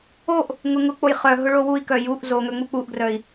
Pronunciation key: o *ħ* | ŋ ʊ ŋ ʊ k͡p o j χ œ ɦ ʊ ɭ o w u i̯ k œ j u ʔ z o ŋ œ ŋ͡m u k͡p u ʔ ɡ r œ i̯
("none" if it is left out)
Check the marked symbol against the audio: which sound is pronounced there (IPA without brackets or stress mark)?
ʔ